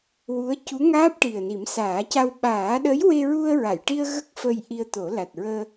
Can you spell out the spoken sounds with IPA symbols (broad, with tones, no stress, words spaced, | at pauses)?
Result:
wu˧˥ə̯ cu˧˥ŋaː˦˥p̚ ʈi˨˩ə̯ni˨˩˦msaː˨˩˦ca˧w ɓaː˨˩˦ɗə˧˥jwe˧ɹu˧ə̯ ɹa˨˩˨jʈi˧ə̯ ɣə˦˥k̚fə˧j ʔi˧ə̯t̪o˨˩˦ la˨˩t̚ɹəː˧